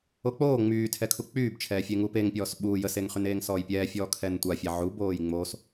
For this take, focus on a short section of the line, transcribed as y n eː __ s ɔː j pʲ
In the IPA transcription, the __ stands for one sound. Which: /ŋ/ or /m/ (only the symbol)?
ŋ